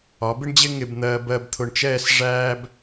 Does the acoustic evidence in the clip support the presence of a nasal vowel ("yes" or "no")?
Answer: no